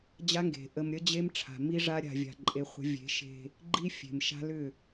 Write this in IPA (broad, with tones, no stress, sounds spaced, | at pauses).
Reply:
d͡ʑ a˦ ŋ ɡ e̤˨ ʔ ə˨ m ɾʲ ə˦ d͡ʑ e˦ m ʈ͡ʂʰ a̤˨ m i˦ ʐ a˦ ɾʲ a̤˨ vʲ a̤˨ ǃʼ e˦ χʷ ə̤˦ vʲ e̤˨˦ ʃ e̤˦ | ɡ͡ǃ i˦ fʲ e̤˨ m ʃ a̤˦ l ʏ˦˨